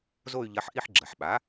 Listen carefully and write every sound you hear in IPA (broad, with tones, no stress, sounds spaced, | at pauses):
z o˥˧ y̯ ʎ ɐ˧˥ ħ ʔ i˥˧ ħ ɡ͡ǁ ɐ˩ ħ ɓ a˩˥